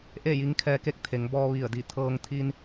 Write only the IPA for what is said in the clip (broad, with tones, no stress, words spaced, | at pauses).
ʔe˥˨ji˧˥ŋkʰɛː˧˥ke˧˥k̚ t̪ʰe˩˧ŋ bɔː˧ ʋi˧˩ə̯di˧˩ t̪ʰɤː˧ŋt̪ʰi˧n